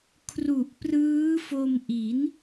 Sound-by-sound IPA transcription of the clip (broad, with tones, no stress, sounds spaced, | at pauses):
kʰ r u˨˩ ʔ p r ɯː˦˥ f o˧ m ʔ i˩˦ n